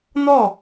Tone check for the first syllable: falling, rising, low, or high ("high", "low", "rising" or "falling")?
falling